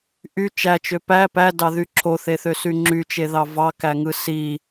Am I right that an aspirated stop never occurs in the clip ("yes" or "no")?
no